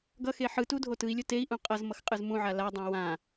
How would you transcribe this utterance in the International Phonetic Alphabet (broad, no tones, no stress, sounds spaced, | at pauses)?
ɡ ʌ x e ħ ɯ t u dʱ o t ɯ i̯ lʲ o t e i̯ ʔ ũ qʼ ʌ z m ʌ x qʼ ɯ z m ũ ʕ a l a dˤ ã w ã